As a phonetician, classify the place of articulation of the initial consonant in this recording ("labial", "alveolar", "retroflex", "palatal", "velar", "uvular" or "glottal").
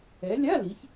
alveolar